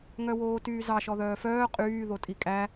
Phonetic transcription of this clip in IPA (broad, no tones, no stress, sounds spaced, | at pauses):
ŋ œ w oː t yː z ɑ ʃ ɔ ð œː f œː qʼ yː ð o tʼ i kʼ æ